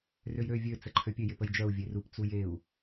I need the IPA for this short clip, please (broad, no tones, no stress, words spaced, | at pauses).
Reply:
røjɾø vʲø t͡səǃʰøpʲø jɪpəjd͡ʒœu̯ vʲerup t͡sujeu̯